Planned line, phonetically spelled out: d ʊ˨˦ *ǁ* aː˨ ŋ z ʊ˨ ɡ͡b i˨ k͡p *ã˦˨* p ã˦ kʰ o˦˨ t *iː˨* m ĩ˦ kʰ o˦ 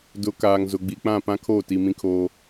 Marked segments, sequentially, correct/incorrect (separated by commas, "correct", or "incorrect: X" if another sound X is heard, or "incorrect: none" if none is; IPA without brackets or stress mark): incorrect: k, correct, incorrect: i˨